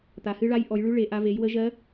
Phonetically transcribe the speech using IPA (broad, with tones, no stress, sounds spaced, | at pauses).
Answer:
t̪ a˨˦ h ɨ˦˥ ɭ a˦˥ j ʔ ɔ˨˦ j ɭ ʉ˦˥ ɭ e˨˦ ʔ a˦˥ v e˨˦ j w ə˦˥ ʒ ɜ˦˥